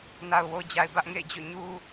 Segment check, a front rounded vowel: absent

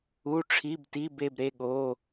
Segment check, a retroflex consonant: present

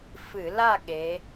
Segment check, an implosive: present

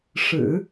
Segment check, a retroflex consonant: present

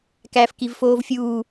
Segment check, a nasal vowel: absent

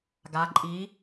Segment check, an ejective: present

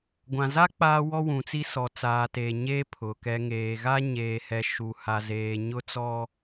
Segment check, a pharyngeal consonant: absent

